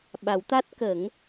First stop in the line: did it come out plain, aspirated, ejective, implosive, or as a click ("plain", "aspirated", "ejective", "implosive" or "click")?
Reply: implosive